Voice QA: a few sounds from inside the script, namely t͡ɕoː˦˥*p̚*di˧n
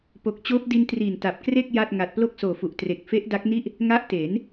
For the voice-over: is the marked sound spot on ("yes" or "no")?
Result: yes